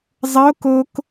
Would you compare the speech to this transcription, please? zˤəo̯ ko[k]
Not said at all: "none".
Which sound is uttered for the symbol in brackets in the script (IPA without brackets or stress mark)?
k